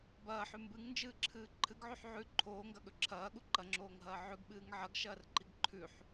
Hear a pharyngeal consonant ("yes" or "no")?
yes